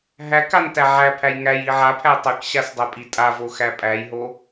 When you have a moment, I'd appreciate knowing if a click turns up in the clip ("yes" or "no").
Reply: no